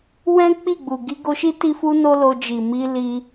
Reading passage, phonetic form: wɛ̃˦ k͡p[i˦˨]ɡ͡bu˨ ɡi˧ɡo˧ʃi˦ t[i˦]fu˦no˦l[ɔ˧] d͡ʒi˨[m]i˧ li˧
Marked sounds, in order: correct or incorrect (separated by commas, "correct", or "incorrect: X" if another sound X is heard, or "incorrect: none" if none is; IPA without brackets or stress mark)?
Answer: correct, correct, incorrect: o˧, correct